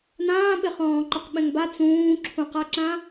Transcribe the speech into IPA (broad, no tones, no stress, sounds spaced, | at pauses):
n ãː ɓ ɪ χ ɔ̃ː ǃ ʊ q ɓ ɛ̃ ŋ b a t͡s ũː ǁʰ ũ q a ǁ ã